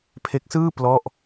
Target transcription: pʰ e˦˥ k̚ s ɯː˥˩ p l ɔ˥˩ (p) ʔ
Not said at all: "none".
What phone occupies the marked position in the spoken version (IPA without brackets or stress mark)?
none